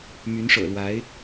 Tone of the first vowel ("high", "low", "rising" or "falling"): rising